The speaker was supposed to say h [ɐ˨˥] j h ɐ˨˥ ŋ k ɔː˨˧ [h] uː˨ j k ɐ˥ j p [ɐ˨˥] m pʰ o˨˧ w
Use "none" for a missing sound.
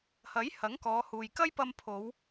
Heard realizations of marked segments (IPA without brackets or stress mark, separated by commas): ɐ˨˥, h, ɐ˧